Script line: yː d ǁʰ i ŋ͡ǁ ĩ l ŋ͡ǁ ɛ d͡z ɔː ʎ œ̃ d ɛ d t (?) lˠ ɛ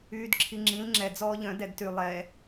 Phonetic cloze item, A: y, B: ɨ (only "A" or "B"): A